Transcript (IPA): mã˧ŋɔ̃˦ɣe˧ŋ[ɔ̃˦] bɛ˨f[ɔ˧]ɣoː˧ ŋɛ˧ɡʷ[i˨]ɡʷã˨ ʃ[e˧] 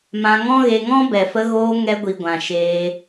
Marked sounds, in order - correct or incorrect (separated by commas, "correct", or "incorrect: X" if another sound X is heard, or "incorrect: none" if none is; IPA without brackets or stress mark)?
correct, incorrect: ə˧, correct, incorrect: eː˧